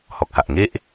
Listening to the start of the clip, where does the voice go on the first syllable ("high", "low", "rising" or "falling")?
low